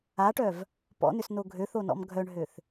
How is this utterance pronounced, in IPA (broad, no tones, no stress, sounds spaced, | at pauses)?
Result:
a ʈ œ v | p ɔ̰ n ʏ s n o ɡʱ ø θ o n ɔ̰ m ɡʱ œ ɳ ɦ ø θ